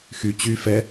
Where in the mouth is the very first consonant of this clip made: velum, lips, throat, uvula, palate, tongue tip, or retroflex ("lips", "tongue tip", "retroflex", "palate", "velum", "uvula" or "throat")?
velum